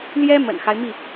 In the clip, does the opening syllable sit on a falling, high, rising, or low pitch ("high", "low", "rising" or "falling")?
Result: high